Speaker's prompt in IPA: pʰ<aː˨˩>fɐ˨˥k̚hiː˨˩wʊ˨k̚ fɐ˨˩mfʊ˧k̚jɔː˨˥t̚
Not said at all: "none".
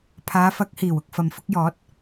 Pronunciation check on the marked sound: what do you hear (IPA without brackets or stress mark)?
aː˨˧